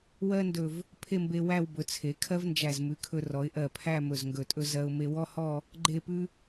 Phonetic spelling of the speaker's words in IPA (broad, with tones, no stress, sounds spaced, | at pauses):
w ɜ˥ n d ɵ˧˩ v | pʰ e˥˧ m b e˧ w æ˥˧ w b ɵ˩˧ t͡sʰ e˩˧ kʰ ɜ˥ v n d͡ʒ æ˧˩ z m ʉ˩˧ kʰ ɵ˧ r ɔ˩˧ ɪ̯ ʔ ɜ˧˩ pʰ æ˥˧ m ɵ˧˩ z ŋ ɡ ɵ˧˩ tʼ ɵ˥ z ɜ˧ ʊ̯ m e˧ w ɔ˥ h ɔ˥˧ | ɡ͡ǃ e˥˧ p ʉ˥